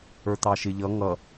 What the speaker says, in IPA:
ə˞t̪ɑʃɪ ʎʌ ŋʌ

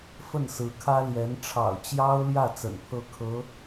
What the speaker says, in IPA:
fə˥˩nsɹ̩˧˥kʰä˥ ljɛ˧˥n ʈ͡ʂʰɑ̰˨˩ʊ̯t͡ɕjɑ˥ʊ̯ljä˥˩ t͡sə̰˨˩npʰɤ˥˩kʰɤ˧˥

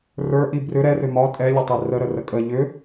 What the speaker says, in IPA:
rə˞ʔi brʏ ɾɛrʏ mɒ tʼɛlʲətˤi rəɾərə kʼə ʎʏ

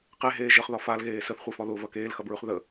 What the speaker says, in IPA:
qeɦeː ʒəχðɒ falɣeː səθχʷefɒ ðʊvɐ keːlxɐbɹʉχ ðə

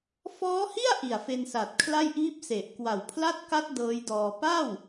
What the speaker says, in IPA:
fɔː˦˥hi˥˩a̯ ʔi˨˩a̯fe˧nsa˨˩t̚kʰla˥˩j ʔiː˦˥p̚se˨˩ʔ kwa˨˩wpʰla˥˩t̚ka˦˥t̚ dɤː˦˥jdɔː˧ pa˥˩w

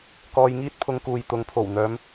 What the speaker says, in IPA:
kɔː˧jŋiː˥t̚ pʰʊ˧ŋkuː˨jt̪ʊ˨˧ŋ pʰo˨˩wn̪œː˨˧m

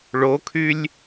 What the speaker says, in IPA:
ɭokʰylʲ

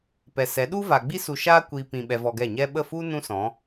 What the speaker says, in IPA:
pɛ˨sɛ˨˦ ɗu˦va˨ɡ͡bi˦ su˧ʃaː˦ kʷi˨ pĩ˨ ɓɛ˧vɔ˧ɡɛ˦˨ ɲɛ˧ɓə˦˨fu˦ nũ˦sɔ̃˨˦

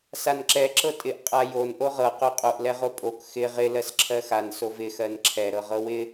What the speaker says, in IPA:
sanǁɛ ǁɤtʼɪʔ qʼajon ʔoʁɤ qoqʼoʔ lɛʁopʼok xɪ ʁɪ lɜsǁʰɜxan sovɪ xɜnǁʰɛ ɾɤʁɤwɪ

